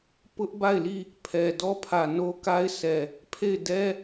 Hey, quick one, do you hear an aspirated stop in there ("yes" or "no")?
yes